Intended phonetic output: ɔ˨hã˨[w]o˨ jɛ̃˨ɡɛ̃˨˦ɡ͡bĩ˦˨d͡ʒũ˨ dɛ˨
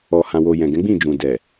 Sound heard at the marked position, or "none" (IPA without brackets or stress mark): w